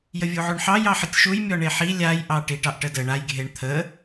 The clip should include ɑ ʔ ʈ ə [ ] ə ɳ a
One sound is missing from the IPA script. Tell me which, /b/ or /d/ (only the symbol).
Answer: d